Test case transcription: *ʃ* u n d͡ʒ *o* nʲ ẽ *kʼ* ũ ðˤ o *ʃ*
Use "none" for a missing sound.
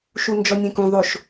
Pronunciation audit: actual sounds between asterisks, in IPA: ʃ, ɔ, k, ʃ

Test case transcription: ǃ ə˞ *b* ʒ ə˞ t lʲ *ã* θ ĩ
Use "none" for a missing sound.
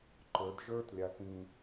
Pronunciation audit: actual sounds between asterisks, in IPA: d, a

